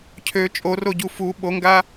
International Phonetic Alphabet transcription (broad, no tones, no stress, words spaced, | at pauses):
cʰø t͡ʃʼoroɟu fu ɓoŋɡa